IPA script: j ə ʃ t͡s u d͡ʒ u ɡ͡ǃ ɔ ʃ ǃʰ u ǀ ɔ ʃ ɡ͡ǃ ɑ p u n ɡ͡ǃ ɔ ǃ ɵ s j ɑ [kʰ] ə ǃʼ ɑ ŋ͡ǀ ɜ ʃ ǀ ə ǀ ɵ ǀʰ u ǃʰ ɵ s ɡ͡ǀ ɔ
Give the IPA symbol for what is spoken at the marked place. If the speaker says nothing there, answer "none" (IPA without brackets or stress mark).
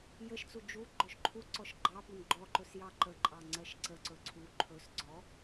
ǃ